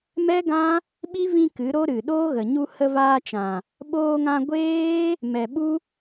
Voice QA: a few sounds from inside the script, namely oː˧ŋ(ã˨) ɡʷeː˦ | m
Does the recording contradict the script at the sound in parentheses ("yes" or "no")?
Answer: yes